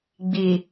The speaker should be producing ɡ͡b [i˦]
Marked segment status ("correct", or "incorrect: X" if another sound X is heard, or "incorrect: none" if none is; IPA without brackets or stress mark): incorrect: i˨